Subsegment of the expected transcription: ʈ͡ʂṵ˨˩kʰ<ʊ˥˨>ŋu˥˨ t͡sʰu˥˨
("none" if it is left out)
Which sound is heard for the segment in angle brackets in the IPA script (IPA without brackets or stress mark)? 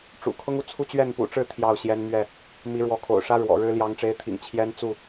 ʊ˦